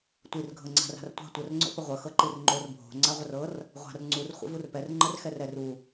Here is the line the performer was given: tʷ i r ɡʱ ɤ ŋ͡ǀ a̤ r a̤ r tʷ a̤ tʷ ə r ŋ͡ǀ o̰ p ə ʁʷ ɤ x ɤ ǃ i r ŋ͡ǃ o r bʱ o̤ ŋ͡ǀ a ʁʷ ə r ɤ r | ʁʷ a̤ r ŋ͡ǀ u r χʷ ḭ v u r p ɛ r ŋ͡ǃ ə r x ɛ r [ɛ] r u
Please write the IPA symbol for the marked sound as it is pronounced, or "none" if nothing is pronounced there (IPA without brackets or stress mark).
ɛ